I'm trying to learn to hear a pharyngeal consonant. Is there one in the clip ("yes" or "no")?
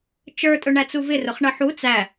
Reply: yes